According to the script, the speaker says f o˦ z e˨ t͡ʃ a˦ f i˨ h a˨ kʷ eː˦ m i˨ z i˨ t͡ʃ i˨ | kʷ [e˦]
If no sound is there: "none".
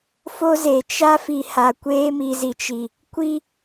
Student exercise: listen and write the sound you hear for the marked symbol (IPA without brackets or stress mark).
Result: i˦